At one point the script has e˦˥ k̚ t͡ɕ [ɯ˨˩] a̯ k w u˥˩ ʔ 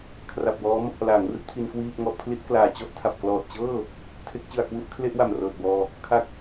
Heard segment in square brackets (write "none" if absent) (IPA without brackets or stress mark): ɯ˨˩